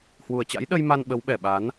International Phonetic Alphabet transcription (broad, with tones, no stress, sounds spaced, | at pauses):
h w u˨˩ ə̯ t͡ɕ a̰˧˥ j ɗ ə˧ j m a˧ n ɓ ə˨˦ w ɓ ɛ˨˩ ɓ a˨˦ n